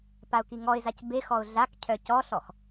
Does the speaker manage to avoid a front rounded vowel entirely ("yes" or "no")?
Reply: no